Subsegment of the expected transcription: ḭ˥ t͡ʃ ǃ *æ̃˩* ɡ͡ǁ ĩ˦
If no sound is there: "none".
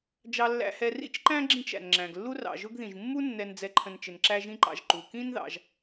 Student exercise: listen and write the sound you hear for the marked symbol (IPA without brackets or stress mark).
æ̃˥